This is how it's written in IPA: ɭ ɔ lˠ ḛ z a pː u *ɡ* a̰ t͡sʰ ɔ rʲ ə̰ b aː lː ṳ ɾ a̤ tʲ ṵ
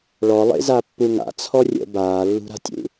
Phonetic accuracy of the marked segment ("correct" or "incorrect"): incorrect